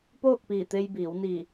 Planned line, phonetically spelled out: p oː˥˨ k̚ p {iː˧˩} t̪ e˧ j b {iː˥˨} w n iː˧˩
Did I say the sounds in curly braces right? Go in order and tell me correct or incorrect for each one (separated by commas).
correct, incorrect